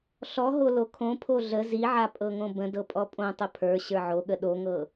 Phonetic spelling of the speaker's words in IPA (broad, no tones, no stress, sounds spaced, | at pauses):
ɬ ɔ ɦ o l o kʰ õ pʰ o ɮ ə z i ʕ a pʼ ɤ ŋ õ b ə̃ d ɤ pʼ ɔ pʼ õ tˤ ə pʰ ə˞ ɕ ə˞ ʕ o ɠ ə ɗ o ŋ ɤ